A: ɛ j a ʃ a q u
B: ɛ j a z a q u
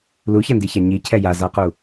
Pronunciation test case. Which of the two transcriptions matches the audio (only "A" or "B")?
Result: B